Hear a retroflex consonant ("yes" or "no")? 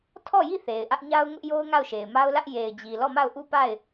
no